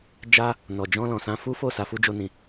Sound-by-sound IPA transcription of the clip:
d͡ʒ a˦ | n ɔ˨ d͡ʒ ɔ̃˧ l ɔ̃˨ s ã˧ f u˦ f o˦˨ s a˨˦ f u˦ d͡ʒ o˦ n ĩ˧

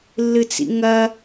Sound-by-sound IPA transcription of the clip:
lː ɨ t͡s ḭ ŋ ɐ

